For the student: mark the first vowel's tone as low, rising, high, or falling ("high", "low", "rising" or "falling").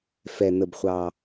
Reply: low